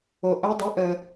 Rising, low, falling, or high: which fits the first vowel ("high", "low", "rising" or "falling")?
low